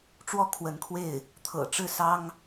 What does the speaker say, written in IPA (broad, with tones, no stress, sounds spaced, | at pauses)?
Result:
ʈ͡ʂ w ɔ˥˩ kʰ w ə˧˥ n kʰ w e˥˩ ɪ̯ | t̪ʰ ɤ̰˨˩ ʈ͡ʂ ɻ̩˥˩ s ɑ˥ ŋ